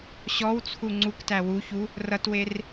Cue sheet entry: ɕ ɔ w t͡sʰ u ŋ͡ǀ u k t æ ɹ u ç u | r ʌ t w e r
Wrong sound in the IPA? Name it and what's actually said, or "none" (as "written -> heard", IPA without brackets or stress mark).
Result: ɹ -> w